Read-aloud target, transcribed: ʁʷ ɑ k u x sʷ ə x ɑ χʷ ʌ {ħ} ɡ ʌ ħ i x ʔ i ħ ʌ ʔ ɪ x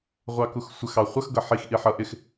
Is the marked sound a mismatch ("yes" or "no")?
yes